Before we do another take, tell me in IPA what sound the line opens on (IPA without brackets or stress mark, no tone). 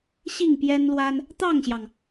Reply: ɕ